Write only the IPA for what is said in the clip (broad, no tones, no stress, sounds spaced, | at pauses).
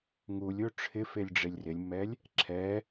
ŋ u lʲ o ʈ͡ʂʰ ɪ f e lʲ ɖ͡ʐ e lʲ r ɪ lʲ mː ɛ lʲ | ǁʰ ɛ